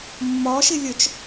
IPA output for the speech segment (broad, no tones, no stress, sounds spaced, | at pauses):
mː ɒ ʃ e lʲ œ t͡ʃ